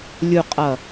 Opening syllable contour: low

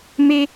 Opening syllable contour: high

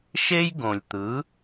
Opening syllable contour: high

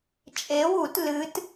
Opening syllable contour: rising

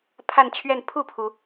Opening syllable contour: falling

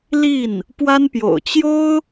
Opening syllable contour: falling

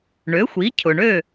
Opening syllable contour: rising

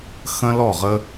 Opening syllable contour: high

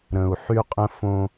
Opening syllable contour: low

